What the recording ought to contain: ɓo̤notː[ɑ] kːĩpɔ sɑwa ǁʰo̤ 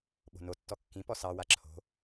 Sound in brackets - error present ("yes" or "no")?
yes